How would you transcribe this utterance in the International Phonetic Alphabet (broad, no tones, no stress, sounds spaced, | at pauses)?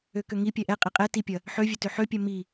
ø k ø ŋ i pʲ ɛ ʔ ɛ qʼ e qʼ ɛ t i pʲ ɐ | ħ ø vʲ ø t ø ħ ø pʲ ɛ m i